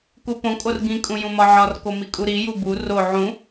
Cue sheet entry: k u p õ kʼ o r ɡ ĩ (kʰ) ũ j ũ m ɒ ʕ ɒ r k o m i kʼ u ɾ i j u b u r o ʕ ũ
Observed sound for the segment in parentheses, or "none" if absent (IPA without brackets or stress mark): kʼ